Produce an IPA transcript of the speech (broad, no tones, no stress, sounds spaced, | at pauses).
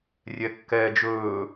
rʲ ɛ kː ɛː d͡ʒ ɵː